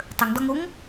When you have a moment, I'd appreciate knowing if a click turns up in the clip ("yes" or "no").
no